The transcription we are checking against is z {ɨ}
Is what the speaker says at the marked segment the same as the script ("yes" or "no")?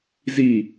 no